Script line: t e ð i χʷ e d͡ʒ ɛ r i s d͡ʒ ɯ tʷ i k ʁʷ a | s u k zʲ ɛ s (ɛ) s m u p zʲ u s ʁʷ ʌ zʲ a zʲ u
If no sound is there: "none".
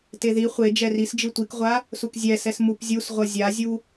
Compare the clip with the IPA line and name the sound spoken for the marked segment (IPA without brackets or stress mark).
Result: ɛ